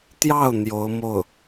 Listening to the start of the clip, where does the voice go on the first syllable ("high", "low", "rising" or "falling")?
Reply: falling